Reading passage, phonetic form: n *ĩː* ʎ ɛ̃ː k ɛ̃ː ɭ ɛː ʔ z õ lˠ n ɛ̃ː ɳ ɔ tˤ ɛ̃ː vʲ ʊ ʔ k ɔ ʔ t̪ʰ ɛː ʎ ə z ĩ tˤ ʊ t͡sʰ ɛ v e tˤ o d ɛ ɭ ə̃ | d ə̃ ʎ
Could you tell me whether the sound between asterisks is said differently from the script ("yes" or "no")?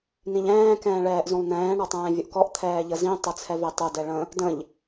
yes